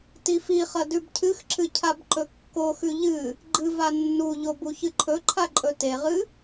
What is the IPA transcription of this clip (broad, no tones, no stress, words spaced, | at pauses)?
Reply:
tifiχɐ dʉbcʰɨxǁɨ cʰabǃɵkːoxʉ ʎɨ | ɡ͡ǃɨ vanːuʎo buçɨǃʰɵǃʰa ǃʼɵteʁɨ